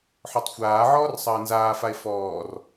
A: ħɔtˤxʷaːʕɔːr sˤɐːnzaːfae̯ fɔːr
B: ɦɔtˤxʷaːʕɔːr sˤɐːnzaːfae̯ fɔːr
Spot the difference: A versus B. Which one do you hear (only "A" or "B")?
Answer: A